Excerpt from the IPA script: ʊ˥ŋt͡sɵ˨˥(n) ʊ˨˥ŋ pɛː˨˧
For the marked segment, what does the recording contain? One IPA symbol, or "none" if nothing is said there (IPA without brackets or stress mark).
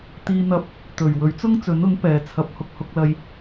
n